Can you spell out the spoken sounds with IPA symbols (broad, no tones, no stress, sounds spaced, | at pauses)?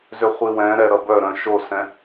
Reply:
z ʏ χʷ i w ɛ̃ ɾ ɛ ɾ ʌ b œ ɾ œ̃ ʃ o s ɛ̃